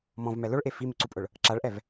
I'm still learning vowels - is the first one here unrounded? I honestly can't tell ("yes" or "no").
no